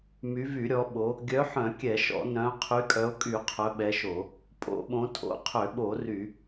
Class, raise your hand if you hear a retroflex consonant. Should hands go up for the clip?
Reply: no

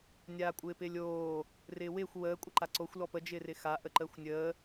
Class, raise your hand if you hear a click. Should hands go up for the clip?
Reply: yes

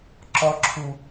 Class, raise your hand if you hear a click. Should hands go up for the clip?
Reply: yes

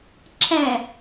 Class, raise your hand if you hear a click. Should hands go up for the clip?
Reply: yes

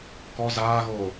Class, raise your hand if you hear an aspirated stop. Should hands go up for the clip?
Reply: no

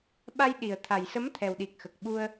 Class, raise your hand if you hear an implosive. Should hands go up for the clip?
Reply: yes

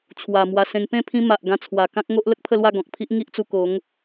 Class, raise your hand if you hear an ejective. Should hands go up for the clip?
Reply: no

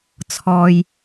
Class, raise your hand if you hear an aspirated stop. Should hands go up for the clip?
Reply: yes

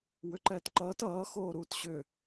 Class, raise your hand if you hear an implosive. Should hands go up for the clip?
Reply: no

